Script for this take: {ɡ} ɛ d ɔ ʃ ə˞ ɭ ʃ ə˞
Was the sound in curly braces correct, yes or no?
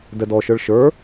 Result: no